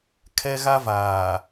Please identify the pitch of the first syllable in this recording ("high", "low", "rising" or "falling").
high